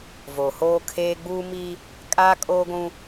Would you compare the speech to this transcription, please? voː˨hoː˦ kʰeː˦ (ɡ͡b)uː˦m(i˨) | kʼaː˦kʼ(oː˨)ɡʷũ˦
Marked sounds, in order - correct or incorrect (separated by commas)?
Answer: correct, incorrect, incorrect